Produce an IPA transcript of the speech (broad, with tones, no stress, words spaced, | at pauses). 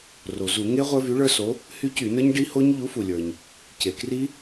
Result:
ro˩zu˧˩˧ ŋe˦˥ ʁʷə˞˦˥vy˨˥ɭə˞˦˥so˨˥ | hy˦˥cy˧˩˧nə˞˦˥ɲ ɖi˦˥ho˦˥ɲ ʎu˨˥fu˩lʲə˞˩ɲ | ce˩kri˦˥